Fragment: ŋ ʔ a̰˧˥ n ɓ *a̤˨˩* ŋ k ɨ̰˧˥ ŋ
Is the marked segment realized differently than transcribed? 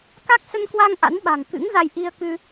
no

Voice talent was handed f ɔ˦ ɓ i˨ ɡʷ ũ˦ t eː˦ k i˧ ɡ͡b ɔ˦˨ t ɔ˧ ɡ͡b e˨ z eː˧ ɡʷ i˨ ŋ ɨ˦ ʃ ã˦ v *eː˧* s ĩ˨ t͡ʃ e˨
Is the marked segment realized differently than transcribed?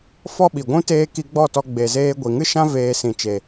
no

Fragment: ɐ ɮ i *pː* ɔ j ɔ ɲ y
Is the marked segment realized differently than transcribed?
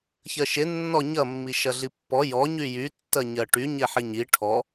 no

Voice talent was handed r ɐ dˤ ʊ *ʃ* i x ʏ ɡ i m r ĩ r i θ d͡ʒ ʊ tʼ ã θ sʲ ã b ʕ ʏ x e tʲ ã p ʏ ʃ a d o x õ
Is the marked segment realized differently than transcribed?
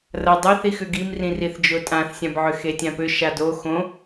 yes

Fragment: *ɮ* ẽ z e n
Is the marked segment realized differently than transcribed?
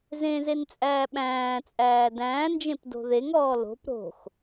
yes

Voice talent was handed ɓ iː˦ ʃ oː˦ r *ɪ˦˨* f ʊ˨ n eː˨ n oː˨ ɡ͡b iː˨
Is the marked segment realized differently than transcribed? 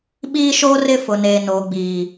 no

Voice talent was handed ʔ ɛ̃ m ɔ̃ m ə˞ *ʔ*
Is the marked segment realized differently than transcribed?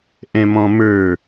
yes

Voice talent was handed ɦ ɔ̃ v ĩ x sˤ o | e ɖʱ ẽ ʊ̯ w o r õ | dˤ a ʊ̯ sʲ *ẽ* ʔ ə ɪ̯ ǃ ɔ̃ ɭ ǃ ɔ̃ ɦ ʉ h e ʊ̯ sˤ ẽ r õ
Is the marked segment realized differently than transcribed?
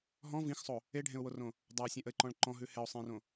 no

